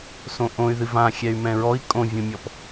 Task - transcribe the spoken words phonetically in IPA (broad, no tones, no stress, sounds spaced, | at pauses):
s õ ʔ õ y̯ ð ɨ v ã xʲ ɛ y̯ m ɛ̃ ɹ ɔ i̯ kʼ õ vʲ ũ mʲ ɔ p